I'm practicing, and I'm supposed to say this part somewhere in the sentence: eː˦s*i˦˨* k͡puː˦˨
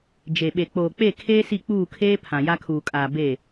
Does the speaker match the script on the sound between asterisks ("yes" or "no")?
yes